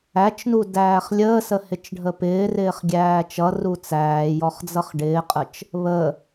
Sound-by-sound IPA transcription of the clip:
æ t͡ʃ n u d æː χ lʲ əː s ə h ɪ t͡ʃ ɖʱ ə p ɪː r ɪː χ ɡʲ æː t͡ʃ ʌ r u t͡s æː j ɔ χ d͡z ʌ χ ɖ ɪː qʼ ə t͡ʃ | β ə

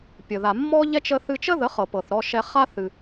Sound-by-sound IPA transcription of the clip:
pʲ ə˨ ð a˨ mː ɔ˦ ʎ ɛ˦ t͡ʃ ə˦ θ ɨ˧ t͡ʃ ə˦ ð ə˨˦ χ ɤ˨ p ɤ˨ θ ɾ ɔ˧ ʃ ɛ˧ χ a˦ θ ɨ˧

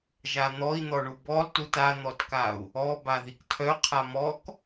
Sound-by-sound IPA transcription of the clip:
ʒ a n̪ ɔ i̯ n̪ ɔ ɳ u b ɔ lˠ t u t a n̪ ɔ t k a u̯ | ɔ b a ð i k tʰ œ qʰ a m ɔ k

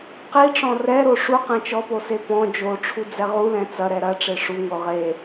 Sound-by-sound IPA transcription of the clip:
q i ʈ͡ʂ ɔ̃ r ɛ ɾ o ʂ u q ɛ̃ t͡ʃ ɔ p o s e p ɔ̃ d͡ʒ o ʈ͡ʂʰ u d͡z ɛ ʁ u l ɛ̃ t͡s ɐ ɾ ɛ ɾ ɐ ʈ͡ʂ e ʂ u ŋ o ʁ e

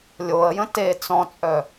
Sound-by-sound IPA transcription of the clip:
lʲ o ə̯ j ə̃ t e t͡s ɔ̃ t͡sʼ œ

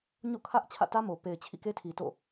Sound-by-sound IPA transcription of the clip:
ɲ o̰˦˨ kʰ ä˦ ʔ t͡ɕʰ ä̰˦˨ t ä˦ m o˨ p e˨ ɪ̯ t͡ɕʰ ḭ˦˨ k e˦ tʰ i˨ t o̰˦˨

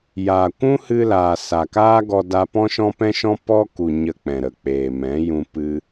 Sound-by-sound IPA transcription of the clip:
j aː˨ kʷ ũ˦ h ɨ˧ l aː˨ s a˨ k aː˦ ɡ ɔ˧ d a˧ p ɔ̃˦ ʃ ɔ̃˦ p ɛ̃˦ ʃ ɔ̃˦ p ɔ˦ k u˨ ɲ ə˧ k͡p ɛ̃˨ ɾ ə˨ k͡p eː˨ m ɛ̃˨˦ j ũ˧ p ɨ˧

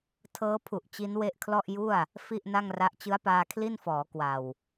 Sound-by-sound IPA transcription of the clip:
tʰ ɤː˦˥ pʰ u˨˩ ʔ t͡ɕ i˦˥ n w e˦˥ ʔ kʰ l ɔ˥˩ ʔ j u˥˩ a̯ | f i˥˩ ʔ n a˥˩ ŋ r a˦˥ ʔ t͡ɕ ɯ˦˥ a̯ p aː˧ kʰ l i˥˩ n f ɔː˩˦ k w a˨˩ w

